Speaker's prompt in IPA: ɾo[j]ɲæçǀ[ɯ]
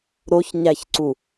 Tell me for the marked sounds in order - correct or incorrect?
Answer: incorrect, incorrect

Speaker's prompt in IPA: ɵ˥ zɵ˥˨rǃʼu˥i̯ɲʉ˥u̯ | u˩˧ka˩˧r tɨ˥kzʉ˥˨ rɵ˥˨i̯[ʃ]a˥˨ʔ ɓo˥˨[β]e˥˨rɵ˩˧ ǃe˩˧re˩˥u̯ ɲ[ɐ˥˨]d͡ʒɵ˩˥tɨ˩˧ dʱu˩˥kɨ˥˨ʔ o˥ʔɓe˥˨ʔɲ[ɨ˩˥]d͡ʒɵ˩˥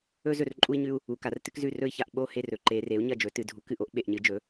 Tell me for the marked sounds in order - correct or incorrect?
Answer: incorrect, incorrect, correct, correct

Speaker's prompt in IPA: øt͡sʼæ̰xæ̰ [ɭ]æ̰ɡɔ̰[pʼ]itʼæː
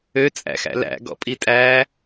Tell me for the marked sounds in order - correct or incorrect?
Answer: incorrect, correct

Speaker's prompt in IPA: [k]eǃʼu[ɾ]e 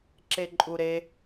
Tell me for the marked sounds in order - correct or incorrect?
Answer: incorrect, correct

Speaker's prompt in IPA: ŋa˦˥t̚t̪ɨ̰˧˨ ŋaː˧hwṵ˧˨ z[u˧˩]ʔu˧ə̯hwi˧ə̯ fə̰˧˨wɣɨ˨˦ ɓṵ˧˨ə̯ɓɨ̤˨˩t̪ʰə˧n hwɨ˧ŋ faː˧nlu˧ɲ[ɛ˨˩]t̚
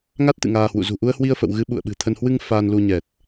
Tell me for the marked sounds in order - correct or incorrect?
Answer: incorrect, correct

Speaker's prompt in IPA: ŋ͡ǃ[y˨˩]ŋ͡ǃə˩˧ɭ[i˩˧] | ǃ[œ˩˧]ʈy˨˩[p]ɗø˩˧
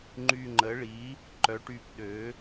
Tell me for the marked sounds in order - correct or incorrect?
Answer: correct, correct, correct, correct

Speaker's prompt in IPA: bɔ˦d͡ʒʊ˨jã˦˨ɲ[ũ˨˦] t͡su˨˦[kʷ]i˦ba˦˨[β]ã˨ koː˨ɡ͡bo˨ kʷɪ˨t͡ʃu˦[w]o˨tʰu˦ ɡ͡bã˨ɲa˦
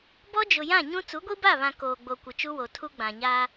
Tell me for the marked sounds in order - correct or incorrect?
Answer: incorrect, incorrect, correct, correct

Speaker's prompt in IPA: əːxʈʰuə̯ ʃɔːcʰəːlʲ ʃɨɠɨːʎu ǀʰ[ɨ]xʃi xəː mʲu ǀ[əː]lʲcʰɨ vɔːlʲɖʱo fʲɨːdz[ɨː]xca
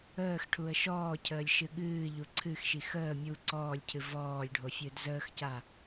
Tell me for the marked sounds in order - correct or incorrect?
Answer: correct, incorrect, incorrect

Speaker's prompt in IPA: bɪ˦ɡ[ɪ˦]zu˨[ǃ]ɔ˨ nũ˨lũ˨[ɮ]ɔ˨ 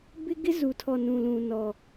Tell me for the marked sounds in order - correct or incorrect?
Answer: correct, incorrect, incorrect

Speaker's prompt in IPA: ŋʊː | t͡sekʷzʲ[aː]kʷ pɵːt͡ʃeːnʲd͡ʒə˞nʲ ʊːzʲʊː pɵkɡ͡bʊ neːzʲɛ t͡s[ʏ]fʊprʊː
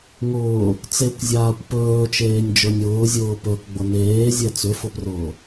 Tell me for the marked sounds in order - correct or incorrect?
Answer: correct, correct

